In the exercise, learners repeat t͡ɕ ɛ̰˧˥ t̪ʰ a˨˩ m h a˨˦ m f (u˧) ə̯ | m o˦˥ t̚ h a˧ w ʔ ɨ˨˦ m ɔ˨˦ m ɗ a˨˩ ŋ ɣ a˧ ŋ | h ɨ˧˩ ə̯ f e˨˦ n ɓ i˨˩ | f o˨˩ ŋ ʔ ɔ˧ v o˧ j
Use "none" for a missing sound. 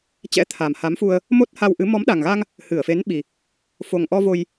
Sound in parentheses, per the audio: u˧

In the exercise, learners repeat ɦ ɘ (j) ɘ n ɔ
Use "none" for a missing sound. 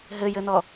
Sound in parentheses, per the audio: j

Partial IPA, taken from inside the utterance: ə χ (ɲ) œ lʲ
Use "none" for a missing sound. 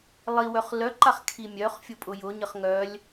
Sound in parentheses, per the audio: ŋ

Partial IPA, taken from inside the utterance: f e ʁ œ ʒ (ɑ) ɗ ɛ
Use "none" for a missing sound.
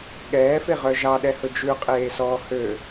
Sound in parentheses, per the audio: ɑ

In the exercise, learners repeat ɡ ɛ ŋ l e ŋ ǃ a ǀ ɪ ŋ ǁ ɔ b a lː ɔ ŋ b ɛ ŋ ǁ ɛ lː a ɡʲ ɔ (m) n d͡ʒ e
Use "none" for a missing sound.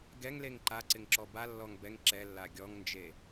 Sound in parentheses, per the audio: ŋ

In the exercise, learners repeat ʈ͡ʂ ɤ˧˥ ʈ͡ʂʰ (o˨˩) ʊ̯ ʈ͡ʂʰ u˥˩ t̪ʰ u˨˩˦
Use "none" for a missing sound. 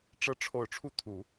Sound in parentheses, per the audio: o˨˩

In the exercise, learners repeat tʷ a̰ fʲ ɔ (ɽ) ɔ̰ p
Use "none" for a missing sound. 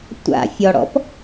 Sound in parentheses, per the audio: ɽ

